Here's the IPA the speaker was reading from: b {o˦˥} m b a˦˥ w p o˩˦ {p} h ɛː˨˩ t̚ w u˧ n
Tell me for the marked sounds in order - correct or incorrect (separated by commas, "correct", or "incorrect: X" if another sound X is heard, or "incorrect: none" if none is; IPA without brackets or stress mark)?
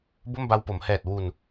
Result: incorrect: o˥˩, incorrect: m